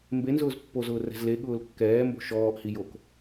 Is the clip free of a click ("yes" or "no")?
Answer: yes